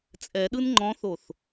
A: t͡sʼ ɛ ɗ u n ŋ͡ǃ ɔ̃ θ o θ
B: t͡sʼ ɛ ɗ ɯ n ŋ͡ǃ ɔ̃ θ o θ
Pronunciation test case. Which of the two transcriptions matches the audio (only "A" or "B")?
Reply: B